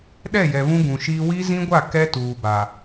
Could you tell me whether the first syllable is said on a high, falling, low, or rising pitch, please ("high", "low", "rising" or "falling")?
falling